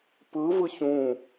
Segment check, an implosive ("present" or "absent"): absent